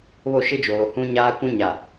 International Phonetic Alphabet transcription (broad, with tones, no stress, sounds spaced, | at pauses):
β o˦˨ ʃ ɪ˦ d͡ʒ oː˨ h ũ˦ ɲ aː˦ kʷ ũ˦ ɲ a˨